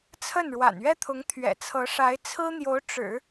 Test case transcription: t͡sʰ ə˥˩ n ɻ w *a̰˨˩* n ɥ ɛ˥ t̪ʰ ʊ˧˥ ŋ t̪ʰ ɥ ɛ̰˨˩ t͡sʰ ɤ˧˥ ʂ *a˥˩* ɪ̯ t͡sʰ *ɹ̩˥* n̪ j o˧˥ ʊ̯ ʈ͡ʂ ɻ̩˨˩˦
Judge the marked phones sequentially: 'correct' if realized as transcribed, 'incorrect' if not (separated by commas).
correct, incorrect, correct